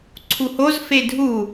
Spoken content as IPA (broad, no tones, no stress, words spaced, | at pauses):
ǀʰuhoz fedʱu